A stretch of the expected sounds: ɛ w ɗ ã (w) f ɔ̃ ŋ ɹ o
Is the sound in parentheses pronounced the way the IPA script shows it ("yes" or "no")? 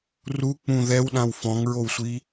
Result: yes